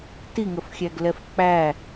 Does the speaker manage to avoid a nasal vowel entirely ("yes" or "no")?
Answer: yes